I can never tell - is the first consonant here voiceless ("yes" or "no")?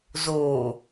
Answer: no